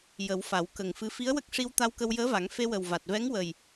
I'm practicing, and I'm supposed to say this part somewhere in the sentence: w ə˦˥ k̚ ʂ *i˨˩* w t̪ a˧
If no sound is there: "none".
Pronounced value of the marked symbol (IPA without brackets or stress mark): i˧